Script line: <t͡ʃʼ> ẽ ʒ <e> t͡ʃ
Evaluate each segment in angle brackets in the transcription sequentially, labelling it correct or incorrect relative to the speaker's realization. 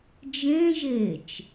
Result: incorrect, correct

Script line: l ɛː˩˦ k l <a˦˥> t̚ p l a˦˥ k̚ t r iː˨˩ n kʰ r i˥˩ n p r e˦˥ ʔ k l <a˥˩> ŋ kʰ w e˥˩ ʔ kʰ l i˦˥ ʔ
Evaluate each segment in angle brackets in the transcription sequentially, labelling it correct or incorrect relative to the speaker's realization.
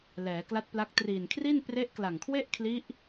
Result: correct, incorrect

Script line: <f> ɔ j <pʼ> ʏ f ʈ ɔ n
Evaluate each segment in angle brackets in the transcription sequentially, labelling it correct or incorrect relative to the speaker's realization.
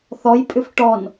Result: incorrect, correct

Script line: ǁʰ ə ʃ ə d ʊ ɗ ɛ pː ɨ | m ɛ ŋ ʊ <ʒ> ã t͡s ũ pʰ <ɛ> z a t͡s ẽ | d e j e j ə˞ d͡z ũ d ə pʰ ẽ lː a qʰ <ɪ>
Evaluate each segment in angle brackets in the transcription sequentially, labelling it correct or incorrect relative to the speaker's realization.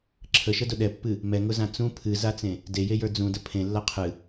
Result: incorrect, incorrect, incorrect

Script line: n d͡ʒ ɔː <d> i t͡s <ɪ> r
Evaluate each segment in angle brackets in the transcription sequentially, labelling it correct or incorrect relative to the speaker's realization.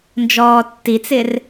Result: incorrect, correct

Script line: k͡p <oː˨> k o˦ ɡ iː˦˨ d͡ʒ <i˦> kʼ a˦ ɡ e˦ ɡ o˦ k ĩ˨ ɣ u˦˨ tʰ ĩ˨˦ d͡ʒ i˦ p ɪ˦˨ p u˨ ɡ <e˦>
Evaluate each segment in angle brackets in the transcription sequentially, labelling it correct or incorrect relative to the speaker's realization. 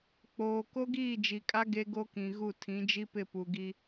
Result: correct, incorrect, incorrect

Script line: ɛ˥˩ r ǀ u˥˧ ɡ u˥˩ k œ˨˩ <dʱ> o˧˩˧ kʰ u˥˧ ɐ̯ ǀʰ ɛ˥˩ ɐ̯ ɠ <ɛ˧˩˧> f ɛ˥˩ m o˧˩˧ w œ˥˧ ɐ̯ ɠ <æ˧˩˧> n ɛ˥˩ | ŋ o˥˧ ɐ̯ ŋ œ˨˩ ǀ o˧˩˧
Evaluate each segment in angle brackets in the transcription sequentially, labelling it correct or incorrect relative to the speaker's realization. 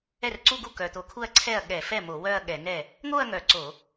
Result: incorrect, correct, incorrect

